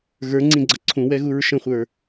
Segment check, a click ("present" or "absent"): present